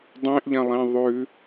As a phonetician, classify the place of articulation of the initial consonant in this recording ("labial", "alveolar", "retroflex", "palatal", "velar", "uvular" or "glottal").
alveolar